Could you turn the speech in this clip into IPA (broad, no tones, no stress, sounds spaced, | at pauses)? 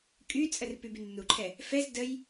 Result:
kʼ y t͡sʼ ə r p y b y nː u ǃʰ ɛ | f ɛ z d ə j